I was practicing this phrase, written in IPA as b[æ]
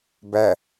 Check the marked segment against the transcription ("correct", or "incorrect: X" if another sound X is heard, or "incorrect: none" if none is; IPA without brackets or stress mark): correct